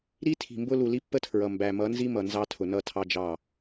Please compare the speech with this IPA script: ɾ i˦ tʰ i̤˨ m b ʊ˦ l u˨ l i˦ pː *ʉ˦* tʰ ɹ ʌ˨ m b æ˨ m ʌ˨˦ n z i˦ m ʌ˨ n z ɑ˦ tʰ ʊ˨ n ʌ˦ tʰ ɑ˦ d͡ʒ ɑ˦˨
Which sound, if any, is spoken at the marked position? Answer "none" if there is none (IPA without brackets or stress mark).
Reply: ə˦